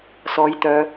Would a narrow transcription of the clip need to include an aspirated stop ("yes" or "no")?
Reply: no